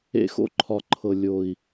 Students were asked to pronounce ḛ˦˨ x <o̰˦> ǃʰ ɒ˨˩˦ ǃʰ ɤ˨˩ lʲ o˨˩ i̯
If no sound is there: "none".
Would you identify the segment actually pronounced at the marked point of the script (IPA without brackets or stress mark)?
o̰˦